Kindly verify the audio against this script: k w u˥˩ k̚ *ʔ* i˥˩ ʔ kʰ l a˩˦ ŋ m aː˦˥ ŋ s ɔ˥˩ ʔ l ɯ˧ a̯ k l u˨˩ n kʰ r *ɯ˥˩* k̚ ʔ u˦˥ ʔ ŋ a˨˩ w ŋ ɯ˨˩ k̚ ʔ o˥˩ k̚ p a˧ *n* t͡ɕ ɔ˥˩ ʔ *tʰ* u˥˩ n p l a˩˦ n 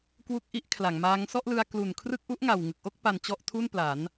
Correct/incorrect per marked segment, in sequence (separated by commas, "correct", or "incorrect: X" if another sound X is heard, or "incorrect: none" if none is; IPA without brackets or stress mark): correct, correct, correct, correct